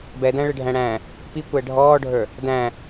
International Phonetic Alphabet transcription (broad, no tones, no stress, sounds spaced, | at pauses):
b ɛ d æ̃ ɭ ɪ ɖʱ æ̃ ɽ æ̃ | p i kʷ æ ɖʱ ɔː ɖʱ ə˞ | d æ̃